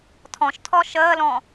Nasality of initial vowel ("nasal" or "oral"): nasal